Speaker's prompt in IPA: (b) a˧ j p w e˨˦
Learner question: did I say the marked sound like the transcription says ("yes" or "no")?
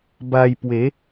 yes